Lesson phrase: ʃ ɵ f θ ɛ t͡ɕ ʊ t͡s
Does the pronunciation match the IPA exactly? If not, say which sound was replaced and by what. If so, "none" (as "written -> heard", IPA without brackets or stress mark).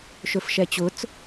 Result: θ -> ʃ